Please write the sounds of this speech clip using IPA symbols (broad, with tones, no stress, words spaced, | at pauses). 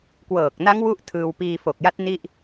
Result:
kwɤː˨˩k̚na˦˥ŋ wu˥˩ʔ tʰɯː˧w piː˧fo˨˩k̚ja˦˥t̚ ni˥˩ʔ